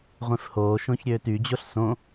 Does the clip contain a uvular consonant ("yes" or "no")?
yes